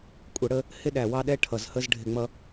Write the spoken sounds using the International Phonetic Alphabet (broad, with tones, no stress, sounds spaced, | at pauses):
kʷʼ ʌ˨˦ ɽ ə˨˦ | h ɪ˥˨ ɗ æ˨˩˦ w ɑ˦ ɗ ɛ˥˨ ʈʰ ʌ˨˩˦ z h ə˥˨ z ɖʱ ɪ˨˩˦ ŋ͡m ʌ˨˦